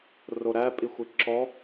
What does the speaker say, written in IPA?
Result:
r o ɾ æ pʼ i xʷ i ǁ ɔ

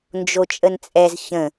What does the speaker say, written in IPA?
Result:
n d͡ʒ o t͡ʃʼ ə n t͡sʼ ɛ z ç ə̃

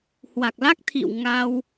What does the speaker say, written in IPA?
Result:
h w a˨˩ k̚ l a˦˥ k̚ t̪ʰ ḭ˧˨ w ŋ a˧ w

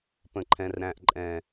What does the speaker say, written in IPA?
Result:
p ə̃˨ ǃʰ ɛ̃˨ r ɾ æ̃˨ ʔ ǃʼ ɛ̃˨

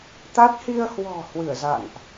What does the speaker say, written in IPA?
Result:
t̪ a˦˥ t̚ h i˧ ə̯ h w ɔ̤˨˩ h w ɨ˧˩ ə̯ z a̰˧˨ n ʔ

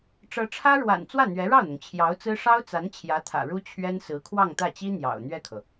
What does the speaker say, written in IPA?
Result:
ʈ͡ʂ ɤ˧˥ ʈ͡ʂʰ ä˥ ɻ w a̰˨˩ n t͡s w ä˥˩ n̪ ɥ ɛ˧˥ ɻ ɑ˥˩ ʊ̯ n̪ ʊ˩ ŋ t͡ɕʰ j ɑ˧˥ ʊ̯ t͡s ɹ̩˥ ʂ ɑ˥ ʊ̯ t͡s a˧˥ n t͡ɕʰ j ä˧˥ t̪ʰ ä̰˨˩ ɻ u˥ t͡ɕʰ ɥ ɛ˥ n s ɹ̩˧˥ kʰ w ɑ˥˧ ŋ t̪ ä˥˩ t͡ɕ i˥ n̪ j ɑ̰˨˩ ʊ̯ n̪ ɥ ɛ˥˩ kʰ ɤ˩

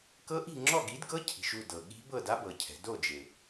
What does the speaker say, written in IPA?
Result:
k ɤ˦˥ ʔ i̤˥˨ ŋ͡ǁ ɔ˥˨ ɡ i˨˥ d ɡ ɤ˦˥ cʰ i̤˩˧ ʃ u˥˨ d ɤ˩ ɠ i̤˦˥ b ɤ˥˨ d a˦˥ b ɤ˩˧ cʰ ɛ̤˩˧ d o˥˨ d͡ʒ e˩

